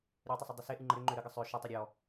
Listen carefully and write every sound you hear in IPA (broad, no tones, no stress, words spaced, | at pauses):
ɾʲø tˤəsˤʌdˤʏse ʔɨŋ͡ǃə ɾʏ ŋ͡ǃøɾəɡə sˤø ʃə tˤəɾʲɔ